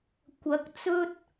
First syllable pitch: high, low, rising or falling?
rising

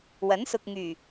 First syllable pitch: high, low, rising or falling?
rising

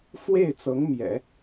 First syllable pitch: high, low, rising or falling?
falling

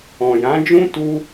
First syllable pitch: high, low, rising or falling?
low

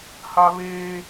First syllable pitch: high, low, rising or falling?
high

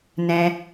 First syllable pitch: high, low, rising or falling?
high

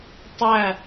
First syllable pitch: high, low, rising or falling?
falling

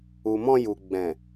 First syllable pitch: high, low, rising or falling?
low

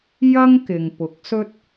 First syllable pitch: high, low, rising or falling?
high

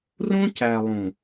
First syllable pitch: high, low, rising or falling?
high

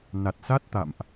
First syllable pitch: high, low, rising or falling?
low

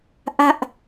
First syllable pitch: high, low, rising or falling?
high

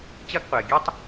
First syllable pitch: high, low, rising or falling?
high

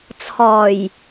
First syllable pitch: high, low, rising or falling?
low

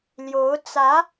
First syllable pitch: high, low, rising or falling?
rising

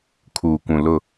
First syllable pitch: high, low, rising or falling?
low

